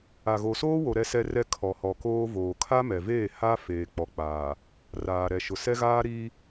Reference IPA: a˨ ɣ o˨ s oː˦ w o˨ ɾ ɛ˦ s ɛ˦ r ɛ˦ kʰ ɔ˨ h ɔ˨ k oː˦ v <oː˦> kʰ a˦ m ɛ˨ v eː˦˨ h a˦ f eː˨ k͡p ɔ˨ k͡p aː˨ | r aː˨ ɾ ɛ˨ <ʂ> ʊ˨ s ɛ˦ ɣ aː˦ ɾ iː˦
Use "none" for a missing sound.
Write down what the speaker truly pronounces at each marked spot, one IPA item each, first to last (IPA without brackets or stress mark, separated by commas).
oː˨, ʃ